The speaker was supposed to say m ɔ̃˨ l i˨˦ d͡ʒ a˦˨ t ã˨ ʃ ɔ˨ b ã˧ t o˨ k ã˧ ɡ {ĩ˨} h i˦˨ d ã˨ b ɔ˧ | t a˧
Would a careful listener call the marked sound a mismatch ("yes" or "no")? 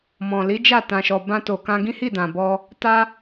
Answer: yes